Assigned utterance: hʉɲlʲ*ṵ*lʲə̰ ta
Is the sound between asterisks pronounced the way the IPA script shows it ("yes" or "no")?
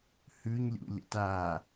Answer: yes